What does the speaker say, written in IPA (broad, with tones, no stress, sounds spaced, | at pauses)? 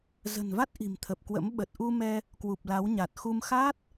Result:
z ə̤˨˩ n v a˦˥ t̚ ʔ i̤˨˩ m t̪ʰ ə˨˩ p̚ k w ə̰˧˥ m ɓ ə˨˩ t̚ ʔ u˧ m ɛ˧ | k w u˨˩ p̚ l a˨˦ w ɲ a˨˩ t̚ x u˧ m x aː˦˥ t̚